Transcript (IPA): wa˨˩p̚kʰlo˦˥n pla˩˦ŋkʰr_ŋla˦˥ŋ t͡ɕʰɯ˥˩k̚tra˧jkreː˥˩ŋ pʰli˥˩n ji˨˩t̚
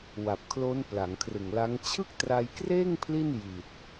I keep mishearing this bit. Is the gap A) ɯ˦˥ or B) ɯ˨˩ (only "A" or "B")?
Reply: B